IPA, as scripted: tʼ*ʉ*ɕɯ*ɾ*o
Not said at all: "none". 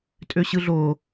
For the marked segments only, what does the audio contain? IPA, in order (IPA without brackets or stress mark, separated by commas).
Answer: ø, ɮ